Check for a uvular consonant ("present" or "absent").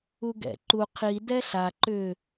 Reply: present